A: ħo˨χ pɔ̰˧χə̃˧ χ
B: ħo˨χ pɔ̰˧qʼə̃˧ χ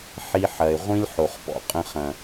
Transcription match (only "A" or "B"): B